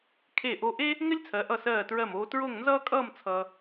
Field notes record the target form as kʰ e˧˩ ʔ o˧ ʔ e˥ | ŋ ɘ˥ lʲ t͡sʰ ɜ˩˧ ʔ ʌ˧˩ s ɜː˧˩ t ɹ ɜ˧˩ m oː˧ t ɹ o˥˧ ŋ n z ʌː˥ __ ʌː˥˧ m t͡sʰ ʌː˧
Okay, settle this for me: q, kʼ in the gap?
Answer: kʼ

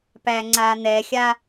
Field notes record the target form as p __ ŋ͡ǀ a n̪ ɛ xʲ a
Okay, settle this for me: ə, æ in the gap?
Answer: æ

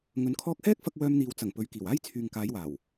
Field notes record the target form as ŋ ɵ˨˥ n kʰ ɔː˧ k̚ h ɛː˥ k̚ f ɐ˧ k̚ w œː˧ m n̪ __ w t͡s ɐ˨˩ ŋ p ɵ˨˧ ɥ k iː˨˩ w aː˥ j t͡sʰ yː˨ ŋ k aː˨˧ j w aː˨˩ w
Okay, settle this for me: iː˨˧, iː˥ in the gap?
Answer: iː˨˧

